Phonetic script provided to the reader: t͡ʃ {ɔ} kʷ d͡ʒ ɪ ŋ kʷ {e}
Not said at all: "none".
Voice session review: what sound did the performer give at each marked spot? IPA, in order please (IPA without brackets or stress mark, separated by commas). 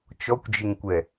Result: ɔ, ɛ